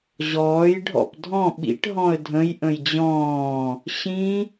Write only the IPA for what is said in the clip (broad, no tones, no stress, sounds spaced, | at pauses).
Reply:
ʑ ɔː j ɖʱ ɔ̰ p dʱ ɔ̃ ɓ ḭ ʈ ɦ ɔ̃ ə̯ dʱ ə̃ j ʔ ə̃ j d͡ʑ ɔ̃ː | ɕ ĩ